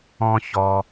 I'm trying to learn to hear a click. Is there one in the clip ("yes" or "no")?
no